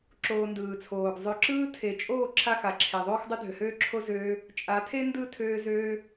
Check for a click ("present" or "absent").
present